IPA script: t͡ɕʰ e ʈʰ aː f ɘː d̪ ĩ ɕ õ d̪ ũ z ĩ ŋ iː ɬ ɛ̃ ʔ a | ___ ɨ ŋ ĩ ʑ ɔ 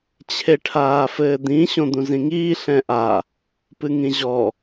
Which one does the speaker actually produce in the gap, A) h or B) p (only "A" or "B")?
B